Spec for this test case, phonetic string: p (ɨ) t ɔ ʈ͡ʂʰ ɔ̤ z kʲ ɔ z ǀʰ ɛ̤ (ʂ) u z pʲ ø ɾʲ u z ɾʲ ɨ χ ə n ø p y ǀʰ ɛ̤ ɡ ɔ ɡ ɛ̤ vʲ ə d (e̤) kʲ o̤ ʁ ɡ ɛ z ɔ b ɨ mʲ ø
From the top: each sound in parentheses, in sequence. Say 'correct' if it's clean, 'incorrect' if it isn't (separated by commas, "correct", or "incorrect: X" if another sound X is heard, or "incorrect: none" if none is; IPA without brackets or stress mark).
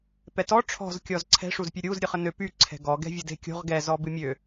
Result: incorrect: ɛ, correct, correct